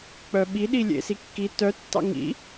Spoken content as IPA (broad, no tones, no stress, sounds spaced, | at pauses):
k͡p œ ɓ i ɗ i lʲ ḛ s i kː i t œ tː ɑ̰ ŋ ḭ